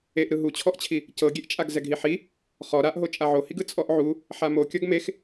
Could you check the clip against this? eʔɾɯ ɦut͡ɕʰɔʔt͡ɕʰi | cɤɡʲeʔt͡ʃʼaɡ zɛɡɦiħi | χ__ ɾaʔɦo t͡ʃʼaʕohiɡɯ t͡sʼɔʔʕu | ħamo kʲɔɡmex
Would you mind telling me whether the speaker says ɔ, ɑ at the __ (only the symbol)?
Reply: ɔ